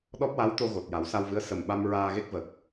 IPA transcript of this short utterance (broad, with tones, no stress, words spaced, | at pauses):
ɗɔ˦˥p̚wa˧˥wt̪o˧ ɣo˨˩t̚ja˨˩˦wsa˧wvɨ˧˥ə̯ sə˨˩mɓa˧m ɹaː˧ɣe˦˥k̚və˨˩k̚